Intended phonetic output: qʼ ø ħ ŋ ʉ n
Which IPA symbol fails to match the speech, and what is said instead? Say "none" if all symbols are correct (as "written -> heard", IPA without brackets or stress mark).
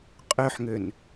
ʉ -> ø